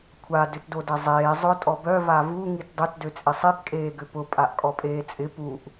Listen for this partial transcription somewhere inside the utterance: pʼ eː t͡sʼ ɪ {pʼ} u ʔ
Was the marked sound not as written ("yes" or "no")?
yes